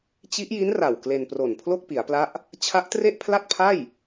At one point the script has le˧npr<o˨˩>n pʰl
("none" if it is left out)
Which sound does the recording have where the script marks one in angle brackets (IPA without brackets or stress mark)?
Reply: o˨˩